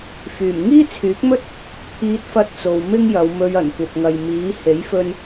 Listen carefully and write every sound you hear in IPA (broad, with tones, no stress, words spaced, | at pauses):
fyː˨˩mŋiː˥t͡sʰyː˨˥k̚mɵ˥t̚ | pʰiː˧t̚fɐ˧t̚ t͡so˨wmɪ˥ŋjɐ˨˧wmɵ˧ɥ ɐ˨˩nkʷɐ˨p̚ŋɐ˨j miː˨˥ he˨˥jfɵ˧n